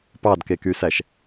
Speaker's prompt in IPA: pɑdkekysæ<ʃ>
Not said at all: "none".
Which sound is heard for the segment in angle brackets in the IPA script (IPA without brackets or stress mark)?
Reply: ʃ